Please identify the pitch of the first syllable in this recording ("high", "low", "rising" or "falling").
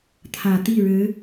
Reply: low